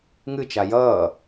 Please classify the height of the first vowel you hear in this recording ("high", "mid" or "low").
high